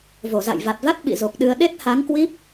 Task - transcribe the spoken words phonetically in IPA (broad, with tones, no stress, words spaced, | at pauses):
vo˧˩za̰˧˨jva˨˩t̚va˦˥t̚ ɓḭ˧˨zo˨˩k̚ɗɨ˧ə̯ ɗe˦˥t̚ha˨˦ŋkwi˦˥p̚